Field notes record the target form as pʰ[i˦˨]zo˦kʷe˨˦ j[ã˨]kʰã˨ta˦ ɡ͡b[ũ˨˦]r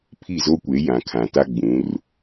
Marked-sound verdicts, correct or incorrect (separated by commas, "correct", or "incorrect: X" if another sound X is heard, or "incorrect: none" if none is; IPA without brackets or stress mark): correct, correct, correct